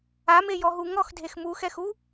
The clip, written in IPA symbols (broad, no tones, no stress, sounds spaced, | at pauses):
a m e j ɔ ɦ u ŋ ɔ x dʱ e x m u x ɛ x u